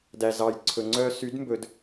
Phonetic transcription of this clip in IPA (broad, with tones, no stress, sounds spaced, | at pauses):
d æ˨ z ɑ˨ j ǀʰ ɵ˨ ŋ͡ǀ œ˦ s y˨˦ d m b ɵ˨ d